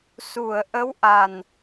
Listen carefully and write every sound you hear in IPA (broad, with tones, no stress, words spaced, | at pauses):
su˨˩˨ə̯ ʔə˧˥wʔa˨˩n